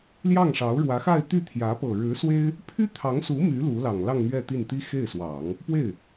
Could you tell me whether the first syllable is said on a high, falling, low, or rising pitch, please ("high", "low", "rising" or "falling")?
falling